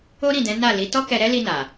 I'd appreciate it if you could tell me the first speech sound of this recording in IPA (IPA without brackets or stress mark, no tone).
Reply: o